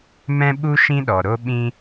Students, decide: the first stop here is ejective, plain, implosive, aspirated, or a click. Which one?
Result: implosive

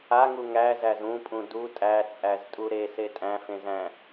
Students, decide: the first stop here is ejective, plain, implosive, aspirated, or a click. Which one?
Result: ejective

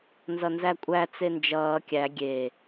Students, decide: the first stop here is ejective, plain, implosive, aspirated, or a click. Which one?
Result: ejective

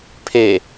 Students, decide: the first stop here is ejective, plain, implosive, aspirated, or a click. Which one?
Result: aspirated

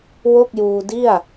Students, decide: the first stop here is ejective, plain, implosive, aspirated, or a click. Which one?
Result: plain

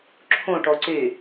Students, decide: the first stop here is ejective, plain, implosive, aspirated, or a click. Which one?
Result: click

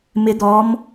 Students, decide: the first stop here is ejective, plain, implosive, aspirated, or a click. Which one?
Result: plain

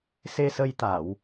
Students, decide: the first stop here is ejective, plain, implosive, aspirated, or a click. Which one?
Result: plain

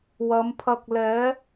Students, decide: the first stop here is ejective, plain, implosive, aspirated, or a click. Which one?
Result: aspirated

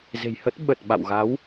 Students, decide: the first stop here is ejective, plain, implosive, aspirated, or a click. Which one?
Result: plain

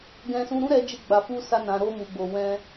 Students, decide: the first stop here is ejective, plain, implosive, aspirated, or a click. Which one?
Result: plain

